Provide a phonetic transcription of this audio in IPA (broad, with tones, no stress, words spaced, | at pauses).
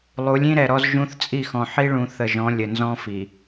lˠu˨˦lʲĩ˦ɾɛ˨ɾɔ˦z ʒũ˦θ t͡sʼi˦˨xɔ̃˨ ħi˦ɭũ˨ θə˨ʒɔ̃˨˦ lʲə˨nzɔ̃˦fi˨